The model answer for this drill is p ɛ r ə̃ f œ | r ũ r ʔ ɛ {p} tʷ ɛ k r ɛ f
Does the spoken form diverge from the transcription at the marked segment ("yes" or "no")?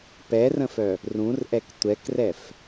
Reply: yes